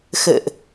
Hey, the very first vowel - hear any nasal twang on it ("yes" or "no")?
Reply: no